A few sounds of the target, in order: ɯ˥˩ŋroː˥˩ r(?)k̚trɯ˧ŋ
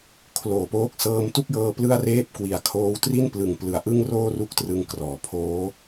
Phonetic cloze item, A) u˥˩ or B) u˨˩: A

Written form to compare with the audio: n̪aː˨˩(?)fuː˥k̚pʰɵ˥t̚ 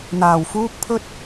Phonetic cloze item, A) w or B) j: A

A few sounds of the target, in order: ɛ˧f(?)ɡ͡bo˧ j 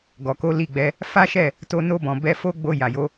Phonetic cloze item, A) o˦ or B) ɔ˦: A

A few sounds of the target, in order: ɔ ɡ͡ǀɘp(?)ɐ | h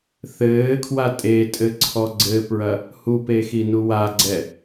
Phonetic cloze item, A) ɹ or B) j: A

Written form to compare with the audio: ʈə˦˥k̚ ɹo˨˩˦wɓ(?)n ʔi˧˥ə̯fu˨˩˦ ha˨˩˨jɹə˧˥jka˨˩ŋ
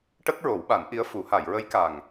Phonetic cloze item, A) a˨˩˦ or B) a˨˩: A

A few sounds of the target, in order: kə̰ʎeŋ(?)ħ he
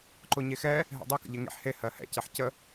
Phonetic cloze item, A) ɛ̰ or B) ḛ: B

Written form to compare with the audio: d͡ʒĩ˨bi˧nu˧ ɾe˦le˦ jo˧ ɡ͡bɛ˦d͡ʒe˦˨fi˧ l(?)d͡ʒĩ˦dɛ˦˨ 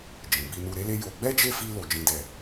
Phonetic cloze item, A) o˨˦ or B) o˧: B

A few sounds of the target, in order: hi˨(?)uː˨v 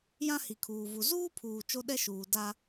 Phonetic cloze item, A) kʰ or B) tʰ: A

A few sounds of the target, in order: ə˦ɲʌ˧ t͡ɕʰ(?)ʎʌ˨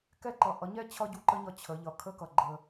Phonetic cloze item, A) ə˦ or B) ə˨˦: B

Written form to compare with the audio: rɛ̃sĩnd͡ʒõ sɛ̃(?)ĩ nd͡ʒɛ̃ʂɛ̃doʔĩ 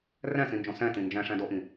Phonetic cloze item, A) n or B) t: B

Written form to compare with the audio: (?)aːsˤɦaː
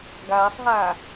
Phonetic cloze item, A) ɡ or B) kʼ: A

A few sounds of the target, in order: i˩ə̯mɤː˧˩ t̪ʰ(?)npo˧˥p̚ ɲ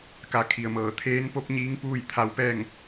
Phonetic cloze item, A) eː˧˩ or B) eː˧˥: B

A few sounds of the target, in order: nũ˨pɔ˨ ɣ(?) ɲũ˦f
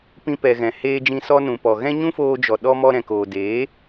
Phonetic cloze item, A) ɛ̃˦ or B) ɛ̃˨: A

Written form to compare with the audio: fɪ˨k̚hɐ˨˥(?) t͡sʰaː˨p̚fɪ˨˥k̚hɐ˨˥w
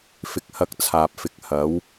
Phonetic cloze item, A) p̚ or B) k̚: B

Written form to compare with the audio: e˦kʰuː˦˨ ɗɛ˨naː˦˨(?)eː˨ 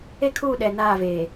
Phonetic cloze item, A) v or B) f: A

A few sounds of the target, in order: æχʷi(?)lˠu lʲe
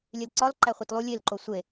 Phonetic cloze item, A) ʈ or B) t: B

